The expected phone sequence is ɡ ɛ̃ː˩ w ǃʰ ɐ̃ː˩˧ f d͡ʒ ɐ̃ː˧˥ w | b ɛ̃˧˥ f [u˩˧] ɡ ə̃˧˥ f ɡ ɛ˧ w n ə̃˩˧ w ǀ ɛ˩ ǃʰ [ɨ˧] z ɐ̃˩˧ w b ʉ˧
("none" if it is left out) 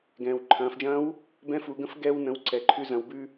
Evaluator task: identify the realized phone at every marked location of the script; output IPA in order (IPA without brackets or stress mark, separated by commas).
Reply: u˩˧, ʉ˧